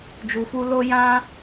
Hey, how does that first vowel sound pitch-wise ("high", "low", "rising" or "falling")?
low